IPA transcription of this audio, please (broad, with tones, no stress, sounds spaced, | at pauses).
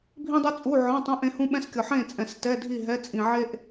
bʱ ĩ˥ dˤ u˥ t͡sʼ u˧˥˧ ʕ ɔ̃˧˥˧ tˤ ũ˧˥˧ ʔ ẽ˥ h ũ˥ ɓ ɛ̃˥ s kʲ ɔ˨ ħ ẽ˥˨ t͡sʼ ɛ̃˨ s t ɛ˧˥˧ dʱ i˥˨ ɦ ɛ˧˥˧ t͡sʼ ĩ˨ ʕ e˥ ʔ